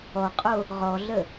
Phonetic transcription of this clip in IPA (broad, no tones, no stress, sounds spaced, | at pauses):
ɔ qʼ o | ʁ ɔ ɮ ə